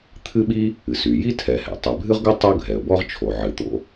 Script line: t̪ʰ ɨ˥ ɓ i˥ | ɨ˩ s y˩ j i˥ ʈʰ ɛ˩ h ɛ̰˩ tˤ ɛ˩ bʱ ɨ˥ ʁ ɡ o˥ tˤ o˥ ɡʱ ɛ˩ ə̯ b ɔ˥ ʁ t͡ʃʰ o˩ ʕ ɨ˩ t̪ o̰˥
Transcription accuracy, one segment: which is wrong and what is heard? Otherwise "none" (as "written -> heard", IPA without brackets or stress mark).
ʈʰ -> tʰ